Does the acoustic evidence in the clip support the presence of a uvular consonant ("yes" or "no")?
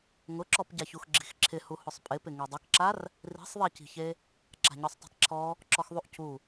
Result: no